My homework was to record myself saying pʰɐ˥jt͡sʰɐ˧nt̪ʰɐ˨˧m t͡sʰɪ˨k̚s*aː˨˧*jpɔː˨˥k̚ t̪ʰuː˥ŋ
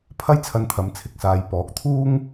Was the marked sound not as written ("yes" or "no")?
yes